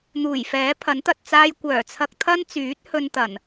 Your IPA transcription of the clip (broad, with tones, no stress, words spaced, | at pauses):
n̪uː˨˩jfɛː˨˥ pʰɐ˨˥nt̪ɐ˨t̚ t͡saː˥j kʷœː˨˩t͡sʰɐ˧k̚t̪ʰɐ˥nt͡syː˨˥t̚ hɵ˥n t̪ɐ˨˩n